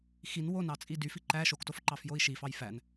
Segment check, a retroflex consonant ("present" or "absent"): absent